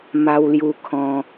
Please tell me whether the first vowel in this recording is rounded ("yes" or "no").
no